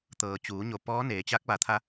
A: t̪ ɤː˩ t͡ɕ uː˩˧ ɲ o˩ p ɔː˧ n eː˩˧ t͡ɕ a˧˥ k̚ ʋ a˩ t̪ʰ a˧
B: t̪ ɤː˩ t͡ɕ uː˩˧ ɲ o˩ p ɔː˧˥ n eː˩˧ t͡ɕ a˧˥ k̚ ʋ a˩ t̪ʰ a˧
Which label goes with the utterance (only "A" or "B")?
B